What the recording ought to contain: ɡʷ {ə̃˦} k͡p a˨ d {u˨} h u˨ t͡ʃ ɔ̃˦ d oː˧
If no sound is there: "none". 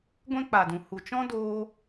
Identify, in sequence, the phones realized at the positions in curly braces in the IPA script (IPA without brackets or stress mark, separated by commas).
ɛ̃˦, ũ˨